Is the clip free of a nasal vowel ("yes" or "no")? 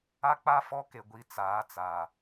yes